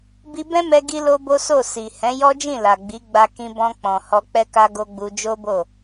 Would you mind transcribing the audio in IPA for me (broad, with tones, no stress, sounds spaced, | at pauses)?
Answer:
b i˧ b ɛ̃˦ m ɛ˧ ɡ i˦ l o˦ b o˦ s o˦˨ s i˨ h ɛ̃˨˦ j ɔ˦ d͡ʒ ĩ˦˨ l a˨ ɡ͡b i˨˦ ɡ͡b a˧ k ĩ˧ b ɔ̃˧ k͡p ɔ̃˨ h ɔ˧ k͡p ɛ˦ k a˦ ɡ o˧ ɡ͡b u˧ d͡ʒ o˦ b o˦˨